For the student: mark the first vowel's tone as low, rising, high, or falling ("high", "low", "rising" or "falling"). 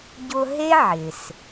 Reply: high